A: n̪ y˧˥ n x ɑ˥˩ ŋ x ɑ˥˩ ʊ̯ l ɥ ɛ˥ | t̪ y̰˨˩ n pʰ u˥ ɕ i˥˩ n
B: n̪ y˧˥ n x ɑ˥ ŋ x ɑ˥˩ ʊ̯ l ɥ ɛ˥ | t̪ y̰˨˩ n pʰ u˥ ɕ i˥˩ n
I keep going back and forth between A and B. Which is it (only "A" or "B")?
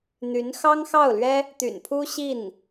B